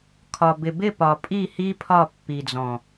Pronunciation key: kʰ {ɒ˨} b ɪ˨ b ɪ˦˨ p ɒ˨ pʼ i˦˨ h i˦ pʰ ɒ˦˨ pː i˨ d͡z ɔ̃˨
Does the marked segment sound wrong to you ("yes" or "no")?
no